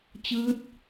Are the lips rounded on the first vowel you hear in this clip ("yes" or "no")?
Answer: no